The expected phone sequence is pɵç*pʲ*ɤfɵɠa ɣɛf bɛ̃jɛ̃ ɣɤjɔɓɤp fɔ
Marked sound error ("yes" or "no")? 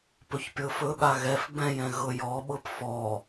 no